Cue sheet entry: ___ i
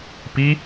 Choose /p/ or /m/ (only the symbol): p